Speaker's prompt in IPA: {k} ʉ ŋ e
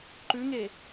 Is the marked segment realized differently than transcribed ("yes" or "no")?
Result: yes